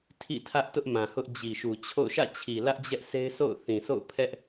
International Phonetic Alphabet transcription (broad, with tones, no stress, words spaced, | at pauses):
tʰḭ˦˨tʰä˦ʔ tʊ˦ʔmã˨hʊ˦ʔ d͡ʑi˨ʃu˨t͡ɕʰo̰˦˨ʊ̯ ʃä̰˦˨t͡ɕʰi˨lä˦ʔ d͡ʑɛ˦ʔse˦ɪ̯so̰˦˨ʊ̯ θĩ˨so̰˦˨ʊ̯pʰɛ˦ʔ